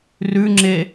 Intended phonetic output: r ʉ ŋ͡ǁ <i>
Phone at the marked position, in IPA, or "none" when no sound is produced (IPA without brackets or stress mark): e